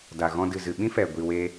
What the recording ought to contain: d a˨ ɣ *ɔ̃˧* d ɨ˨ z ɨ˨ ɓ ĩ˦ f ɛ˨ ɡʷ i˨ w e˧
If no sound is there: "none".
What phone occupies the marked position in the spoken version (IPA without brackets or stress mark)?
ɔ̃˧